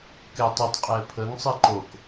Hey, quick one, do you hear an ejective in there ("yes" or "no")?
yes